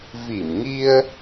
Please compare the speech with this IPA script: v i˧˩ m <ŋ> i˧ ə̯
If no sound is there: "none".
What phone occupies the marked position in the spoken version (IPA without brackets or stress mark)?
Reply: ŋ